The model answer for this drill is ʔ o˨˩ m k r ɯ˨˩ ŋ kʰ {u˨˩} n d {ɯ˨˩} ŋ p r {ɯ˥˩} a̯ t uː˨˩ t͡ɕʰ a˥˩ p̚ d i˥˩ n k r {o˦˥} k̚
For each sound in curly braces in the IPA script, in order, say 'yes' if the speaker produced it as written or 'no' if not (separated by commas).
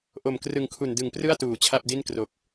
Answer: yes, yes, yes, no